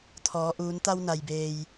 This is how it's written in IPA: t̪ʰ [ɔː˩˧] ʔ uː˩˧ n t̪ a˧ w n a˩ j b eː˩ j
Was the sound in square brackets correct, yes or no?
yes